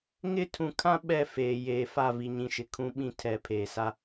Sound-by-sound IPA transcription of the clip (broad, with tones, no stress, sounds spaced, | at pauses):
ŋ ɪ˦˨ tʰ ũ˨ kʰ ã˦ ɓ ɛ˦˨ f eː˨ j eː˨ f a˦˨ v i˨ ɲ ĩ˨ ʃ ɪ˨ kʰ ũ˨ ɓ ĩ˦ tʰ ɛ˨˦ pʰ eː˨ s a˦